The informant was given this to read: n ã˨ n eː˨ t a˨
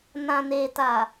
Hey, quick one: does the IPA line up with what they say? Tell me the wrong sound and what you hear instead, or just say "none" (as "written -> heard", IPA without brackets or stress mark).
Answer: none